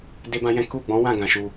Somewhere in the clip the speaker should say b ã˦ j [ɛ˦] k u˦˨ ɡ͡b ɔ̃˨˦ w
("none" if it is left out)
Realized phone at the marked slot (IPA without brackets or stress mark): ɛ̃˦